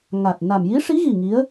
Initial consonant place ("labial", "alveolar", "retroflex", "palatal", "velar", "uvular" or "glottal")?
velar